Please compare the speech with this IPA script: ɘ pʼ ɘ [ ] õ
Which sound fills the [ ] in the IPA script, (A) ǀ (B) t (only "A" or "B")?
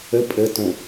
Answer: B